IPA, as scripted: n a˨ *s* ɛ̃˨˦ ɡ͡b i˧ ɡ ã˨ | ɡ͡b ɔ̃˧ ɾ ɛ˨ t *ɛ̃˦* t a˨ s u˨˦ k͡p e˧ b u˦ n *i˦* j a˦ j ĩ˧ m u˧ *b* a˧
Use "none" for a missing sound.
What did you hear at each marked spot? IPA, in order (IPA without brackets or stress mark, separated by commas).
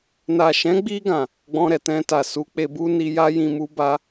ʃ, ɛ̃˧, i˧, b